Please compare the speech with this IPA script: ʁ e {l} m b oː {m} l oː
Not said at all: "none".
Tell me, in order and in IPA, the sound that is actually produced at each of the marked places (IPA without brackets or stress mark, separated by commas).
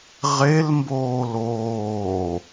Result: l, none